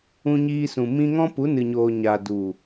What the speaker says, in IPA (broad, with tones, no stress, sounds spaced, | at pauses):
ũ˧ ɲ iː˧ s ũ˨ m ĩ˧ ŋ ɔ̃˦ p u˨˦ n ɨ˨ ɲ oː˨ ɲ a˨ d u˨